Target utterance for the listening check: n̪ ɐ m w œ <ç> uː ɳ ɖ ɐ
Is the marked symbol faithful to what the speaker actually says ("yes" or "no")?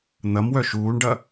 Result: no